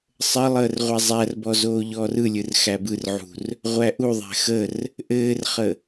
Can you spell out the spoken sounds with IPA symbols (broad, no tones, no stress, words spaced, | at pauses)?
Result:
sˤə lˠəːrʁʷæzˤærbɔ zoːʎɔːrɯlʲɯr xæbɯrʕṳr | ʁʷæʔuðˤæ̤ xər | ʔɘːrχə